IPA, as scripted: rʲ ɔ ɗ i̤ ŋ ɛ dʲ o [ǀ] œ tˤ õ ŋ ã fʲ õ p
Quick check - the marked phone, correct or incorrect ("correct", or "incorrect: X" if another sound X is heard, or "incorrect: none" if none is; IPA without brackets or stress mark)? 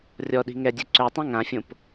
correct